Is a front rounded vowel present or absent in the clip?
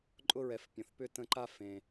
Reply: present